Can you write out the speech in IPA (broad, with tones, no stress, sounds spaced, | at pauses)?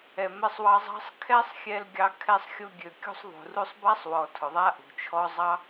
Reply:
ɛ˨ m ɛ˧ sˤ w ɑ˧ zˤ ɑ̤˧ sˤ kʰ ɛ˦ sˤ xʲ ɛ˧ l ɡʲ ɑ˧ kʰ ɛ˧ sˤ xʲ ʊ˧ ɡʲ ø˨ kʲ ṳ˧ sˤ ðˤ ṳ˨ r u˧ sˤ b a˦ sˤ w ɔ˨ tʰ ʊ˨ ðˤ a˦ ʔ ṳ˨ t͡ʃʰ ɔ˧ zˤ ɑ˦